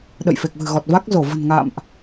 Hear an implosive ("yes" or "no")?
yes